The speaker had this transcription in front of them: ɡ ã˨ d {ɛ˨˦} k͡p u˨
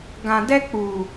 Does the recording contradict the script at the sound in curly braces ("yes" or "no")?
yes